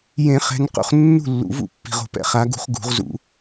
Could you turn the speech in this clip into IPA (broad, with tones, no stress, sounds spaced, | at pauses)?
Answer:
j ẽ˨˩˦ χ ɛ̤˨˦ n q ṵ˨ χ nː ṳ˥˩ lː ṵ˨˩˦ v ṵ˥˩ pː i̤˨ ʁ o̤˨˩˦ p ɛ̰˥˩ χ a˨˦ ɡ ṳ˨˦ χ ɡ ṳ˨˩˦ ʁ z ṵ˨˩˦